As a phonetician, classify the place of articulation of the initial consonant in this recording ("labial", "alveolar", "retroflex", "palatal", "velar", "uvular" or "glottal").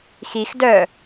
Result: velar